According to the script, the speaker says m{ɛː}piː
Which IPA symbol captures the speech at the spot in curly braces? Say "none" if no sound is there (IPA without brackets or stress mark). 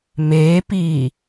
eː